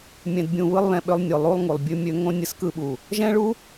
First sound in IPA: mʲ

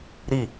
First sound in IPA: ɾ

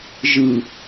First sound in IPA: ʒ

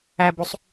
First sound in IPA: æ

